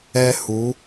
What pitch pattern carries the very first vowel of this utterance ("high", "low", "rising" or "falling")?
high